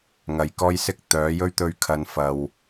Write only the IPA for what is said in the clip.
ŋ ɐ˨˧ j k ɔː˥ j s ɪ˥ k̚ t̪ œː˨˥ j ɵ˥ ɥ t̪ ɵ˧ ɥ kʰ ɐ˨˧ n f ɐ˨ w

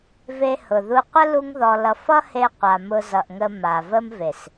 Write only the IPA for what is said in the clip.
v e˧ h ʊ˨ ð u˧ qʷ ə˦ l u˧ ŋ ð ɔ˨ l ʌ˨ f ʌ˦ h e˧ qʷ a˨ m ʊ˧ z ʌ˨ ʔ ŋ ə˧ m a˨ v ə˦ m v e˨ s

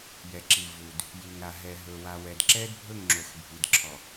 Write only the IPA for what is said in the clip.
j ɛ˨ ǁ i˨ v u˨ d | j i˨ ŋ ɾ a˨ ɦ ɛ˨ ɦ ɵ˨ w a˨ w ɛ˨ d ǁ ɛ˦ d bʱ ɵ˦˨ ŋ ŋ͡ǁ o˨ x bʱ i˨ d ǁʰ ɔ˨

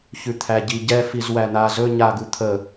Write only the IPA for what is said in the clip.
ç ʉ t̪ʰ æ ɟ i ɟ ɛ f i z w æ n̪ a z ɵ ɲ a ɡ u t̪ʰ ə

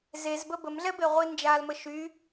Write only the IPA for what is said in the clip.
z e z b ə b ə m ɮ ɛ b e ʁʷ i n d͡ʒ a l m ə ʃ y

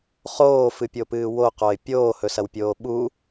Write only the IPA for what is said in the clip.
χ oː f ɨ pʲ o p ɨː w o q o ɪ̯ pʲ oː h ɵ s ɐ w pʲ oː ɓ u

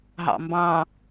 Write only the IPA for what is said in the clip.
ɦ ɑ̰ m b ɑ̃

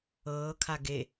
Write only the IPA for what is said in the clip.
ɤː kʰ a ɡ e

